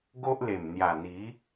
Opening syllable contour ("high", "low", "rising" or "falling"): high